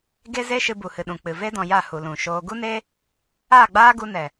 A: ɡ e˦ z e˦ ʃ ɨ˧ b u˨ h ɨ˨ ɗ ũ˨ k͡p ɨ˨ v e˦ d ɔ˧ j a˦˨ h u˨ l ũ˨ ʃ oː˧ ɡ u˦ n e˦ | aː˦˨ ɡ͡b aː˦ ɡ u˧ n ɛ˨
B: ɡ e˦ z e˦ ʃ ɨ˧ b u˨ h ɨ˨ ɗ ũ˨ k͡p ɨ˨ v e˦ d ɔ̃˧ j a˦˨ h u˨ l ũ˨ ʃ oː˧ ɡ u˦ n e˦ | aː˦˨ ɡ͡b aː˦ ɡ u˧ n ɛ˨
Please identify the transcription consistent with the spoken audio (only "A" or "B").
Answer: B